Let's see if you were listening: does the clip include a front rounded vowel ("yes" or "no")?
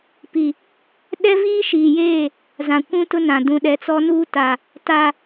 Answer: no